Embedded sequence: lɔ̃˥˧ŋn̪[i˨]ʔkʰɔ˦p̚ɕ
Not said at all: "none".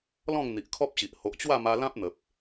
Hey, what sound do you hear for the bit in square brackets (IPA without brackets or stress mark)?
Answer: i˨